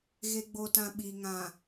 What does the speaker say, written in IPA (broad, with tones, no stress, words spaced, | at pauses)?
ɣe˨ɡ͡bo˨tã˨ ɓi˨ ŋã˨